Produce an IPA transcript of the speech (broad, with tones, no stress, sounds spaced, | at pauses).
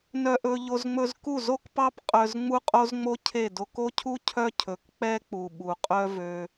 n œ˧ ʔ ɵ˧ ʎ o˧ z ŋ͡m ɵ˧ z k u˦˨ z o˦ k p ɑ˦ p qʼ œ˧ z ŋ͡m u˦ qʼ o˦ z ŋ͡m o˦ cʰ e˦˨ d o˧ k o˦ cʰ u˦ cʰ œ˦ cʰ ɵ˨ k k͡p ɛ˦ k͡p u˨ ɓ u˨ qʼ œ˦ v ø˧